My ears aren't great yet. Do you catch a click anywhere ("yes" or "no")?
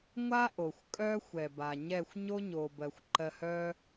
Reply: yes